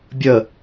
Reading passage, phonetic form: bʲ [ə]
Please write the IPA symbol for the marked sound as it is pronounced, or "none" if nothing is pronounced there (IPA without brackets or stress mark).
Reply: ə